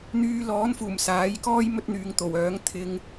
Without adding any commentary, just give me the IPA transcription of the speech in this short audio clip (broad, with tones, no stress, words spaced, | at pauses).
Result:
n̪yː˧ lɔː˨˥nfuː˨˩m saː˨˥jkɔː˥j mɵ˧t̚n̪yː˨ŋ t̪o˨˩wœː˨˥ŋ t̪ʰɪ˧ŋ